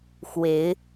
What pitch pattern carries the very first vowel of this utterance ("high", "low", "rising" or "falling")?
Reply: rising